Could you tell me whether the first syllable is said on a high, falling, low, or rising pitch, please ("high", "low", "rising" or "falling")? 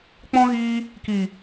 high